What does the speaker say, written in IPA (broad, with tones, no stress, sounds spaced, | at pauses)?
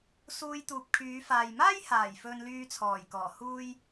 s uː˧ j t̪ uː˨ p̚ kʰ yː˨˧ f aː˨ j m aː˥ j h aː˨˩ j f ɵ˧ n l yː˧ t͡sʰ ɔː˨˩ j k ɔː˨˩ h uː˥ j